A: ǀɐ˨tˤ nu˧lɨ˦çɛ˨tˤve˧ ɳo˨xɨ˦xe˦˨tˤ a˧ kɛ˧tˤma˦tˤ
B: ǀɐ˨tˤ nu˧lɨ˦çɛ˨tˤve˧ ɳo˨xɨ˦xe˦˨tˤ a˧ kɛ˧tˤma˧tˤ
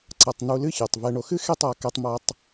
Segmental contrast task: B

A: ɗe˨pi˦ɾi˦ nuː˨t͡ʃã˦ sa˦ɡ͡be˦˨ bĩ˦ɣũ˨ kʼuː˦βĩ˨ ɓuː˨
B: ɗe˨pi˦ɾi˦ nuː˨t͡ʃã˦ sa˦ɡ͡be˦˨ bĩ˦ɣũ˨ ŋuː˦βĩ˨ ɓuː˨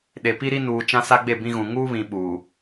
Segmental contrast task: B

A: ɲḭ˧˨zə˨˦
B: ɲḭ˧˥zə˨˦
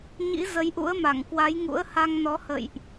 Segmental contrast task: B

